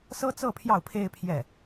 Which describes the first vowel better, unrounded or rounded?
unrounded